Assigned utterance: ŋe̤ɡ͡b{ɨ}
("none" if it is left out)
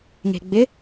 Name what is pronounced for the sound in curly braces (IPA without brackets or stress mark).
ɪ